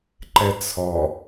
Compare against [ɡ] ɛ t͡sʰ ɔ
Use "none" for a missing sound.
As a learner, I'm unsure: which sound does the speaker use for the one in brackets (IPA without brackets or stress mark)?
ǃ